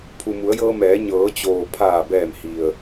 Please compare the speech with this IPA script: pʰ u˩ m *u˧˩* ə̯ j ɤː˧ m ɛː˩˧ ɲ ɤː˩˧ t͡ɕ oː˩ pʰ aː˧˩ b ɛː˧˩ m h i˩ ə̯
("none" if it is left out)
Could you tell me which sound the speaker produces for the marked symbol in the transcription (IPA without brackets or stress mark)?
u˩˧